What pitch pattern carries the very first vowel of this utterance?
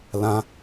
high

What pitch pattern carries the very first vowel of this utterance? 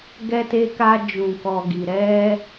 high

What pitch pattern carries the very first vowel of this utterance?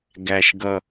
low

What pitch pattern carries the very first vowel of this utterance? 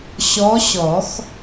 rising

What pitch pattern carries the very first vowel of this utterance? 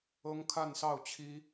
high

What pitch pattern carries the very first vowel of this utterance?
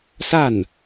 falling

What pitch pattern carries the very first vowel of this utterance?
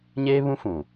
high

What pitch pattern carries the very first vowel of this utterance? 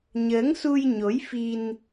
rising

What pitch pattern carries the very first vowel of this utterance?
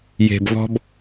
low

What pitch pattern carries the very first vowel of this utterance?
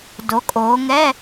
rising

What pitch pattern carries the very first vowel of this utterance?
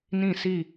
falling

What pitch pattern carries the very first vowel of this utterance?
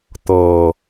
low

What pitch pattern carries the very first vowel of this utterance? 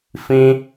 high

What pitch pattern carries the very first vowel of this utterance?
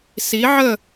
rising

